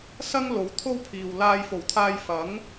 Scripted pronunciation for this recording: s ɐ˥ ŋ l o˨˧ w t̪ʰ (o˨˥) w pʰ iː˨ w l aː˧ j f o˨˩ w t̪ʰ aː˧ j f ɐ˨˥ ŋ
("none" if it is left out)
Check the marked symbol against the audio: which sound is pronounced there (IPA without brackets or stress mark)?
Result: o˥